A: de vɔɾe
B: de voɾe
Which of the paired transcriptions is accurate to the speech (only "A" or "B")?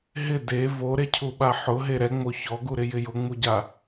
B